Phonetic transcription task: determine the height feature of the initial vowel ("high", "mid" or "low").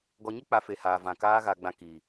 mid